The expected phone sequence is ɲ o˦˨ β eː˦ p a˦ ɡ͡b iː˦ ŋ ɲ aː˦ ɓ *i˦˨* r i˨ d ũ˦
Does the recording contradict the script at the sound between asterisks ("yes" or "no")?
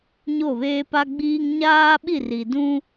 no